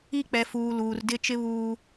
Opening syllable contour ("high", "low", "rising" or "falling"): high